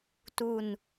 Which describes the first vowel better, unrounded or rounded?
rounded